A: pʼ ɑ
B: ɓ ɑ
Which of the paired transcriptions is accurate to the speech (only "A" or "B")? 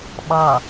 B